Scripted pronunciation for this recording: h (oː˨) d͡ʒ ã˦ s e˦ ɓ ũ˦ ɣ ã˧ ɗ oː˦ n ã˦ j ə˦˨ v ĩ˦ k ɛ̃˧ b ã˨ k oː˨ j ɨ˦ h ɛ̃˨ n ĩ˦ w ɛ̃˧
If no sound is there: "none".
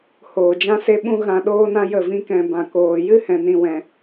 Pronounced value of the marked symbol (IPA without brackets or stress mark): oː˨